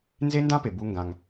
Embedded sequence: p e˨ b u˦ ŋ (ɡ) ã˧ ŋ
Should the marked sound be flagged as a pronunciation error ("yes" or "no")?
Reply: no